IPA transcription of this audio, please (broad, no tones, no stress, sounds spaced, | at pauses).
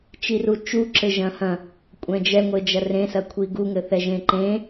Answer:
t͡ʃ i r u t͡ʃ u ǁ ɘ ʒ ɐ̃ h ɐ̃ | kʷʼ ɛ̃ d͡ʒ ɛ ŋʷ e d͡ʒ ɐ r ẽ s ɐ kʷʰ i ɡ u ŋ ɘ θ ɛ ʒ ẽ ǃ ẽ